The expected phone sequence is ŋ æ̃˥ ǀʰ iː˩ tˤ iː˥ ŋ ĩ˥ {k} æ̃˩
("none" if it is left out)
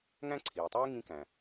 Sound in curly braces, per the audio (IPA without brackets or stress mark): k